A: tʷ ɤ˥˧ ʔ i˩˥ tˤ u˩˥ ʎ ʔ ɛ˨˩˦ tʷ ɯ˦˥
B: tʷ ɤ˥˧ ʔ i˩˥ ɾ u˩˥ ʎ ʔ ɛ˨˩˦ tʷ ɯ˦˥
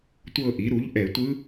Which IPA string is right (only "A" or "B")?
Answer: B